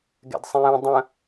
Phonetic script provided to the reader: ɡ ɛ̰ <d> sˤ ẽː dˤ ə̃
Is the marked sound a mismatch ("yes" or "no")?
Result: no